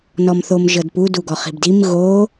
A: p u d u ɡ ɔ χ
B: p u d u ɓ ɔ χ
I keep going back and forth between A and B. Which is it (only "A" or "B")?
A